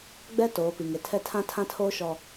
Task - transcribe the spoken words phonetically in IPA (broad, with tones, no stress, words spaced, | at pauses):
ɡ͡bɛ˦ toː˨˦pi˨ ŋe˨tʰɛ˦ tʰã˦ tʰã˦tʰoː˦ ʃɔ˦